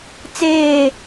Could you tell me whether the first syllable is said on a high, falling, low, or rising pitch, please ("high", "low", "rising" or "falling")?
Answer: falling